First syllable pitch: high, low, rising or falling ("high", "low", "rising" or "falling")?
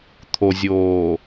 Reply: low